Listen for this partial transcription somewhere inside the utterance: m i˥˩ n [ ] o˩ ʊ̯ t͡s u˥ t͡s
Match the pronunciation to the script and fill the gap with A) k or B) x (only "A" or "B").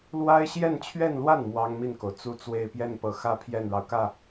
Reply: A